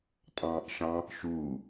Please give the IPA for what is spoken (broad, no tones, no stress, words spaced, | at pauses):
tʼɑ̃ːʔʃɑ̃ | ʃuː